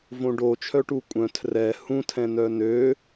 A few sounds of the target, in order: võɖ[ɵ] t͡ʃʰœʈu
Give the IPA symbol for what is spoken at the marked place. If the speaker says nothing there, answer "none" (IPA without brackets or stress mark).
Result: o